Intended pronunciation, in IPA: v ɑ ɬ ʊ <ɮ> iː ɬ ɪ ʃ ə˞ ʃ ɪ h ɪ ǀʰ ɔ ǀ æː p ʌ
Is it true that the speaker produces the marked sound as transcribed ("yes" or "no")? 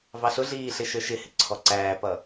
yes